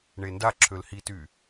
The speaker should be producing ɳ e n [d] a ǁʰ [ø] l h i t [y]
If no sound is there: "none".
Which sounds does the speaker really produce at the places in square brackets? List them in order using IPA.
d, ø, y

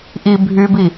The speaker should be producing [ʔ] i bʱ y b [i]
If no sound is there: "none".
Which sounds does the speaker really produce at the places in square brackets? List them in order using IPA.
ʔ, i

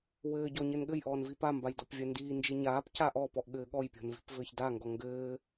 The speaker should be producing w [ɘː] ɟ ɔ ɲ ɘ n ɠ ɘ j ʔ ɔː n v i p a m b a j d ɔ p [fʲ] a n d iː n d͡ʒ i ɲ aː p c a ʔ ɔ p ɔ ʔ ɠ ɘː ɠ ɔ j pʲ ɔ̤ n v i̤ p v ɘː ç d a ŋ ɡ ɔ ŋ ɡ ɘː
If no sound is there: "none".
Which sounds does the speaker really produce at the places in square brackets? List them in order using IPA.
ɘː, vʲ

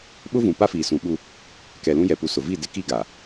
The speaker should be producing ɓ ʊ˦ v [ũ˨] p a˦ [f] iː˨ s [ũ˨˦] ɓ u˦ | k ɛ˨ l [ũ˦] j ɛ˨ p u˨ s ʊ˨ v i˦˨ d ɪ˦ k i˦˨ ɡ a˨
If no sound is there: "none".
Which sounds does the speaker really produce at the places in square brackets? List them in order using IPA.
ũ˨, f, ũ˨˦, ũ˦

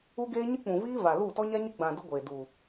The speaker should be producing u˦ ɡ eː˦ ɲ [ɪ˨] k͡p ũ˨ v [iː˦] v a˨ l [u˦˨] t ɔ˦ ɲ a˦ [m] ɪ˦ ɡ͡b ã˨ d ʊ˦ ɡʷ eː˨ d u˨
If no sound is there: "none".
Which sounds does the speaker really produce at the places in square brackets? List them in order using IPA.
ɪ˦, iː˦, u˦˨, ɲ

